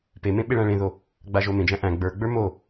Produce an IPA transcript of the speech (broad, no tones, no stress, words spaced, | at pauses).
pemẽ ɓeɭæ̃ɭẽðo | ɡ͡baʒomẽd͡ʒæ̃ ʔæ̃ ɡ͡bə˞ɡ͡bə˞ mo